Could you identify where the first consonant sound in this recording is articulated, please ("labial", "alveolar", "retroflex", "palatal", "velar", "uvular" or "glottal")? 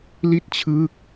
alveolar